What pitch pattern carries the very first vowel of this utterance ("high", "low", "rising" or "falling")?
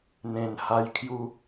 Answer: low